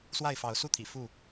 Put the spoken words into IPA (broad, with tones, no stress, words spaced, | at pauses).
swa˥˨ɪ̯fɑ˨˦ʊ̯su˥˨t̪ʰḭ˨˩ fu˥˨